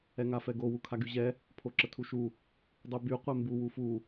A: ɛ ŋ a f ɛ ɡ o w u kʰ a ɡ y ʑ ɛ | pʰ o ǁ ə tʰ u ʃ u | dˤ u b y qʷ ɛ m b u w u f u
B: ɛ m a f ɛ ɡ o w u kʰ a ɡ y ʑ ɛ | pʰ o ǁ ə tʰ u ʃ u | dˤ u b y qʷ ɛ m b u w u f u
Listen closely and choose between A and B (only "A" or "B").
A